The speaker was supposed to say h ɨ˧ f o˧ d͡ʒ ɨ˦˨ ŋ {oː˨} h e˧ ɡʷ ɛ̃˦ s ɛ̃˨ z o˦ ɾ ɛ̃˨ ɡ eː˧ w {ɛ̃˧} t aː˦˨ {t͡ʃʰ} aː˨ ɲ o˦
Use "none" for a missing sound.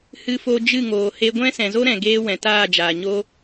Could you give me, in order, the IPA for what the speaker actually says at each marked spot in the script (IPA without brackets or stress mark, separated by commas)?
oː˨, ɛ̃˨, d͡ʒ